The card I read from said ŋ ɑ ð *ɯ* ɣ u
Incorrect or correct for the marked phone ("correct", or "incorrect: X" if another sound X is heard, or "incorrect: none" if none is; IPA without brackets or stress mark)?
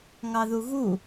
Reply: incorrect: u